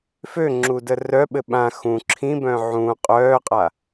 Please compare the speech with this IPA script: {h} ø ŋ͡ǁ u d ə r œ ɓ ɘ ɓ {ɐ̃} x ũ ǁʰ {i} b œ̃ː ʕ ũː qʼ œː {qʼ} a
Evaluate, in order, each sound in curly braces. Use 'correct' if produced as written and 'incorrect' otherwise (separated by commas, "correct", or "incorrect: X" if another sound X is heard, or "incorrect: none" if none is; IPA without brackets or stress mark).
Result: incorrect: f, incorrect: ã, incorrect: ĩ, correct